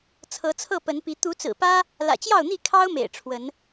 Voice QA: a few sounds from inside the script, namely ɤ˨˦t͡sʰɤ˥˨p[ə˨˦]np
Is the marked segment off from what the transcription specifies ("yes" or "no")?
no